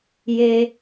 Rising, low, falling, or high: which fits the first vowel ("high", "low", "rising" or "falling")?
high